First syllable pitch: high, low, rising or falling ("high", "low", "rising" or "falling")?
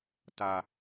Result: low